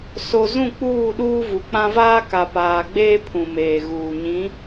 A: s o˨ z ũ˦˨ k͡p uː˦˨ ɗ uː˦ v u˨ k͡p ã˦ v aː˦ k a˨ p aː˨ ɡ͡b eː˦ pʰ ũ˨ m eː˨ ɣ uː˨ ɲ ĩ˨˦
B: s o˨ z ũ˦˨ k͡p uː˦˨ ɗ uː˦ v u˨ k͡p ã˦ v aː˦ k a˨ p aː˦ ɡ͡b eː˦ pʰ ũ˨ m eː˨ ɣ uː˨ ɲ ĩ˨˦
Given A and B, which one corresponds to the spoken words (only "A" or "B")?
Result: A